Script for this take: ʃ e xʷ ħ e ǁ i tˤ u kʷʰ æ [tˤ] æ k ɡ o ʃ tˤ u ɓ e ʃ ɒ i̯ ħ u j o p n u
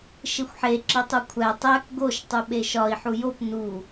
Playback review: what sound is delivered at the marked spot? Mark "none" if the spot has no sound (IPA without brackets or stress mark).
tˤ